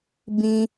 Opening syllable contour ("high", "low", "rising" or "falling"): high